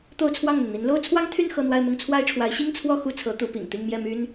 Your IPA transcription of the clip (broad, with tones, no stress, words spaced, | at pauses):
t̪o˥˧ʊ̯t͡sʰwɑ˥˩ŋn̪ə˩nn̪i˧˥n lo˥˩ʊ̯t͡sʰwɑ˥ŋt̪ʰy˥˧n xɤ˥˧n̪wa˥˧ɪ̯mʊ˥˩ŋ t͡sʰwa˥ɪ̯ʈ͡ʂʰwa˧˥ɪ̯ ɕi˥ŋt͡sʰwɔ˥˧ xu˥˩t͡sʰɤ˧˥ t̪u˧˥pḭ˨˩ŋt̪i˥˧ŋ mjɛ˥˩my˥n